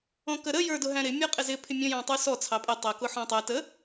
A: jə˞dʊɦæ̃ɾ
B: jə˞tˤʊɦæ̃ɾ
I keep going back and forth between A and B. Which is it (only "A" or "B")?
A